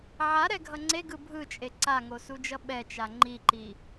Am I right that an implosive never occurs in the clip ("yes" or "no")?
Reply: no